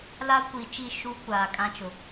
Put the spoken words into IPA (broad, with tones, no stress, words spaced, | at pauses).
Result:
la˦kʷi˨t͡ʃi˦˨ ʃu˦ kʷaː˨kʼã˦t͡ʃʊ˨